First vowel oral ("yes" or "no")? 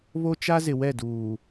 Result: yes